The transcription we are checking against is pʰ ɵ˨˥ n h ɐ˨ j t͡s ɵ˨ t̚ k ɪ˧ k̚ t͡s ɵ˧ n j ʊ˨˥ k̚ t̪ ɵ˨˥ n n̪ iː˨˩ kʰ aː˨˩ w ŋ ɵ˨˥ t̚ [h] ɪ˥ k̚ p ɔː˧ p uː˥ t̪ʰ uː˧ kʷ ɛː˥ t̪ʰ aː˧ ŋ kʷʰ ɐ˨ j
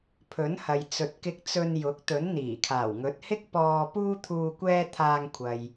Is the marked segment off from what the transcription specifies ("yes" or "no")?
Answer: no